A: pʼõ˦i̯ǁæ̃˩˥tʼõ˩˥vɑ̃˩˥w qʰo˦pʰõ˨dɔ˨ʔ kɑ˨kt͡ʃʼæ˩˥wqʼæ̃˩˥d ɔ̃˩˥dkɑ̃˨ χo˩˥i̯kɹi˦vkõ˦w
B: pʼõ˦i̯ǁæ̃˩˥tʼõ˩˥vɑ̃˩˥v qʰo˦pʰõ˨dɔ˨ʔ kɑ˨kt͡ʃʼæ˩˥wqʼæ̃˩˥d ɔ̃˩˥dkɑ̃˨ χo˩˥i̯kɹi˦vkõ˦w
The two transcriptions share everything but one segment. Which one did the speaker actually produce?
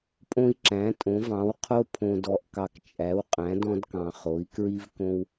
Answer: A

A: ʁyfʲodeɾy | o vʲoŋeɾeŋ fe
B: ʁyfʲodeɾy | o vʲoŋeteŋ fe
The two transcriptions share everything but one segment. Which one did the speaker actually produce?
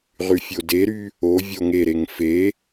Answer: A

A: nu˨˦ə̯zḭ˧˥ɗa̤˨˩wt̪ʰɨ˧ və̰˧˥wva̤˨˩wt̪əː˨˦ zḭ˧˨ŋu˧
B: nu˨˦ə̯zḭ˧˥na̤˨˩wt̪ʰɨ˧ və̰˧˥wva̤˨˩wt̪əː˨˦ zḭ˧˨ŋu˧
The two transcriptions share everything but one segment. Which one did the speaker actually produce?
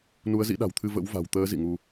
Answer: A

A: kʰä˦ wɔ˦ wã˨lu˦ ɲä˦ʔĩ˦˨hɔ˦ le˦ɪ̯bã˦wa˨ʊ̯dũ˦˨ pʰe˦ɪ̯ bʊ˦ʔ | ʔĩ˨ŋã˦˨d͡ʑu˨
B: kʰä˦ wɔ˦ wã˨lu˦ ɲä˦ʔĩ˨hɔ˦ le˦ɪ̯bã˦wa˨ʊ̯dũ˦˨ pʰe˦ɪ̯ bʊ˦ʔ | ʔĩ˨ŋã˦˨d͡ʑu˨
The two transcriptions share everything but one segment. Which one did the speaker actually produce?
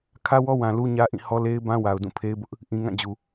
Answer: A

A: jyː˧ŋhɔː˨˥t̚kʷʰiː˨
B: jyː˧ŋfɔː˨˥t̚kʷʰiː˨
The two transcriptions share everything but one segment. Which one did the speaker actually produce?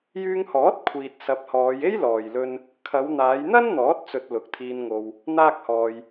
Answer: A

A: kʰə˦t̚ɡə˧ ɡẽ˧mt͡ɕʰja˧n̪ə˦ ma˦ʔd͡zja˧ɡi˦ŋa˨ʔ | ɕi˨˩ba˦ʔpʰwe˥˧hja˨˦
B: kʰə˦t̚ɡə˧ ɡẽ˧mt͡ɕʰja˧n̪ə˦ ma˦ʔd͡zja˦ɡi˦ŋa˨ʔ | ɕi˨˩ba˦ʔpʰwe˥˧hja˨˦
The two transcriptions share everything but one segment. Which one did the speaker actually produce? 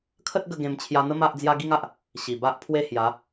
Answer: B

